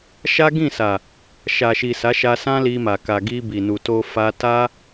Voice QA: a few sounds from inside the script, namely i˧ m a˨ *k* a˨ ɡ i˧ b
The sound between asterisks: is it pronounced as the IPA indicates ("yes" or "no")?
yes